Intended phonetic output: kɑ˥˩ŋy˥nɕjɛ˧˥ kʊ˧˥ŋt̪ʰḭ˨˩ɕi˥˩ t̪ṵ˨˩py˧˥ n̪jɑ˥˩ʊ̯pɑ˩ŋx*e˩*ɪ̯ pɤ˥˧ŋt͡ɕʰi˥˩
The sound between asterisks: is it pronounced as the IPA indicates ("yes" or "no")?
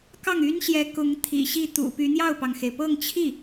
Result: yes